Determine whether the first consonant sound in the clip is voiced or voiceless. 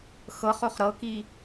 voiceless